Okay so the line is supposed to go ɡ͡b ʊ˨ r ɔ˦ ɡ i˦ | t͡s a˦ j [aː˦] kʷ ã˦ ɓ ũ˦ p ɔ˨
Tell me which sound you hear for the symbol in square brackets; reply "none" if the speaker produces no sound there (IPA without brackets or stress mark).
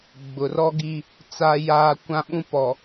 aː˦